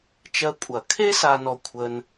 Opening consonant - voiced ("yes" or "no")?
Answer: no